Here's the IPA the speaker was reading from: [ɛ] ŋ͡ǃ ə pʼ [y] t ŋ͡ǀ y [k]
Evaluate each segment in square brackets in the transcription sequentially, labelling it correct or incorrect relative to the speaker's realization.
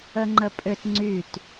incorrect: ə, incorrect: ʏ, incorrect: t

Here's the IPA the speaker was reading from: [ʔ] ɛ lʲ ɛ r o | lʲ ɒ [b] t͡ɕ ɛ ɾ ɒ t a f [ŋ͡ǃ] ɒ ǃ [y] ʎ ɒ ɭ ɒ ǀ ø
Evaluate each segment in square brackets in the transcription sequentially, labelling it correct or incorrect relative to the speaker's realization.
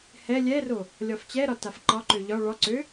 incorrect: h, incorrect: f, incorrect: ǃ, incorrect: ø

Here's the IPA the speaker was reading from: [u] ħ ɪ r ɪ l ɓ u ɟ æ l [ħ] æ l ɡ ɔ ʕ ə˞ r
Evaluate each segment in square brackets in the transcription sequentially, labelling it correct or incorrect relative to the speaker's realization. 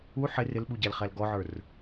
correct, incorrect: χ

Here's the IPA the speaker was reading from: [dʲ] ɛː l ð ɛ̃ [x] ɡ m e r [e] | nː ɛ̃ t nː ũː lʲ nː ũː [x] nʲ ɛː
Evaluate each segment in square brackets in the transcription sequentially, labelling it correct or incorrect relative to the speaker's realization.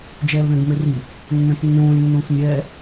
incorrect: d͡ʒ, incorrect: none, incorrect: i, correct

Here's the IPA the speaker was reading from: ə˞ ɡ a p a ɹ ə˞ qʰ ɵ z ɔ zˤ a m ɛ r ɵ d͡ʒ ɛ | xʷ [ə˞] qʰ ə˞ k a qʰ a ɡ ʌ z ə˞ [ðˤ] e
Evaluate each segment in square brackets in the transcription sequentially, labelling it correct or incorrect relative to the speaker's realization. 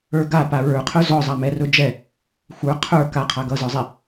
correct, incorrect: zˤ

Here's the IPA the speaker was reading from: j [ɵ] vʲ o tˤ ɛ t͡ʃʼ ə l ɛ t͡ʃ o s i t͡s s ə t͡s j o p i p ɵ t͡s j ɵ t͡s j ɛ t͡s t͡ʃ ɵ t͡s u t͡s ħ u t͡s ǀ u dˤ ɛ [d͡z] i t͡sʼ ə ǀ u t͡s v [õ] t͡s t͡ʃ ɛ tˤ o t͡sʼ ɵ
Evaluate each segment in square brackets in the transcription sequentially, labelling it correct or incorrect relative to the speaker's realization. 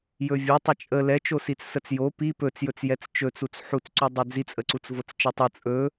correct, correct, incorrect: o

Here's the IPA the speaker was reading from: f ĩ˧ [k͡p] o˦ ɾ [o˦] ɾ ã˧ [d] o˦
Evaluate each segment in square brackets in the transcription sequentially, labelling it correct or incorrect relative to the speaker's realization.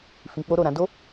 correct, incorrect: o˦˨, correct

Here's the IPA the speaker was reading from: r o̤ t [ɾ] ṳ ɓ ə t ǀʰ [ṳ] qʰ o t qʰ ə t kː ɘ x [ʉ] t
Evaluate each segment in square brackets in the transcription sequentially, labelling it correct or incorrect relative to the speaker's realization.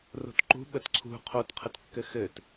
incorrect: ǃ, correct, incorrect: ɘ

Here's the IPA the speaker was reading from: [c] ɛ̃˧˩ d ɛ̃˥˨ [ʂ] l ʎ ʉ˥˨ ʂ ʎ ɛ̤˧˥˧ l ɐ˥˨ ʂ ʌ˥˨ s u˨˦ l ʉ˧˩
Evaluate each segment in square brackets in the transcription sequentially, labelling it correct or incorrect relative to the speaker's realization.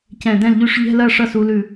correct, incorrect: none

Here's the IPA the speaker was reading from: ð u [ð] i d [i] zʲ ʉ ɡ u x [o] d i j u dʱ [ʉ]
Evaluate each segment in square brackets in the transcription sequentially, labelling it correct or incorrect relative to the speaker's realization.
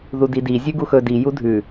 incorrect: d, correct, incorrect: ɵ, correct

